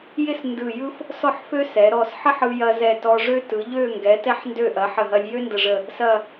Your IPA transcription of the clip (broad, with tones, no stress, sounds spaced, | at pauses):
j ɪ˥˧ s n d ɯ˧˩ j ɯ˥ f | s ɔ˥˧ ħ f ø˥ s ɛ˩˧ ɾ ɔ˧˩ s ħ ə˥ ħ ɯ˧ j ɐ˧ z ɛ˧˩ t ɔ˧ ʐ ø˥ t ɯ˩˧ ʎ ø˥˧ ŋ ɡ ɛ˩˧ t ɛ˧ ħ n d ø˧˩ ʔ ɐ˩˧ ħ ə˧˩ ɦ ɐ˧ lʲ j ø˥ n d ə˧˩ ʐ ə˧˩ | s ɐ˥˧